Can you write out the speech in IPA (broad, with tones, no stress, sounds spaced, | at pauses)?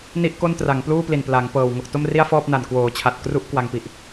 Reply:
n i˥˩ ʔ k o˥˩ n t r a˩˦ ŋ p l uː˥˩ p l i˨˩ n p l a˩˦ ŋ p ɤː˨˩ w ŋ o˨˩ k̚ t o˥˩ m r i˥˩ a̯ f ɔː˥˩ p̚ n a˨˩ n k w oː˩˦ t͡ɕʰ a˨˩ t̚ k r u˦˥ ʔ k w a˧ ŋ p i˨˩ ʔ